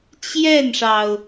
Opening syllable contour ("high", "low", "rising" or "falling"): falling